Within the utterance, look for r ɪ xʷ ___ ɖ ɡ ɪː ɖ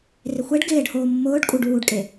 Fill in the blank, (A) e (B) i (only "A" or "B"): A